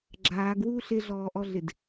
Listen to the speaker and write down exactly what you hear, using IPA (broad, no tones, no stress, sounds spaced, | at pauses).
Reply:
ɡ͡ǁ aː ɡ w uː ɬ ɪ ɮ ɔː ʔ ɔ ɮ ɪ d